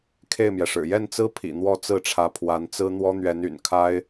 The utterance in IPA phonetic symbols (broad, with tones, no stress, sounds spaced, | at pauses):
kʰ e˥˩ ɪ̯ m j ɛ˩ ʂ ɻ̩˨˩ j ɛ˥˩ n t͡s ɹ̩˥ pʰ ḭ˨˩ n̪ w ɔ˥˧ t͡s ɹ̩˥˩ ʈ͡ʂʰ ä˧˥ pʰ w a˧˥ n t͡s ɹ̩˥ n̪ w ɔ˥ n̪ ɥ ɛ˧˥ n y̰˨˩ n kʰ a˥ ɪ̯